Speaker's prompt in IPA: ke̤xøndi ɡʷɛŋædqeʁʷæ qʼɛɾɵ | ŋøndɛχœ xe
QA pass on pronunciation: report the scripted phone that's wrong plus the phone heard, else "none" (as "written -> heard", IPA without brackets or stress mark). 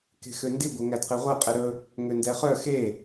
none